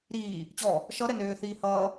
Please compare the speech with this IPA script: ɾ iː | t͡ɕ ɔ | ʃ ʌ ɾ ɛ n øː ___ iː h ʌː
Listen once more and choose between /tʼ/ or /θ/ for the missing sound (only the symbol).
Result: θ